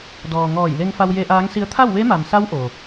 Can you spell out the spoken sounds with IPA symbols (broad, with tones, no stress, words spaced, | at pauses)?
dɔː˩ ŋɔː˧˩jle˧ŋ fa˧wje˧ʔaː˧˥ŋsi˧˥ə̯ t̪ʰa˥˨wʋe˧˥ma˩msa˧˥w ʔo˩